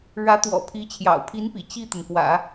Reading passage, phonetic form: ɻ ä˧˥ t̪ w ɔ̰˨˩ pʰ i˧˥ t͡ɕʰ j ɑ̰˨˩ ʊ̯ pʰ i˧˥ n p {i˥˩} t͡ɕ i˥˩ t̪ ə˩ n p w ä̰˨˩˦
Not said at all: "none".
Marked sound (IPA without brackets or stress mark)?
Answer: ḭ˨˩